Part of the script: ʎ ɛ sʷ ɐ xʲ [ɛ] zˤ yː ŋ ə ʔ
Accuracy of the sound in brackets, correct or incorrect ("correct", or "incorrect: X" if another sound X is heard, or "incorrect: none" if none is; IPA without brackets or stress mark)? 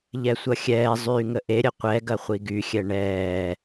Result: incorrect: ɛː